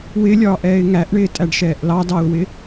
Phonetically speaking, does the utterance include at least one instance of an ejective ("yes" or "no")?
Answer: yes